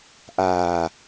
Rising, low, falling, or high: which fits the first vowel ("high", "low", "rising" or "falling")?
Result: low